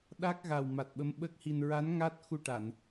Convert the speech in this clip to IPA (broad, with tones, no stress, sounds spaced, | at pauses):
ɗ a˦˥ k̚ ɣ a˨˩ w m a˨˩ t̚ ɓ ə˧˥ m ɓ ə˦˥ k̚ h i˧ n ɹ a˧˥ n ŋ a˦˥ t̚ x u˧ ʈ a˨˩˨ n